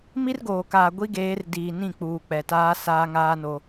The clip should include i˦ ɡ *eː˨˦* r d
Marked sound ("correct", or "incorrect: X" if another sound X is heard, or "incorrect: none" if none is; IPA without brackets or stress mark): correct